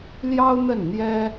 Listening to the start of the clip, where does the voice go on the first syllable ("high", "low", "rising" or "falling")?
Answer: high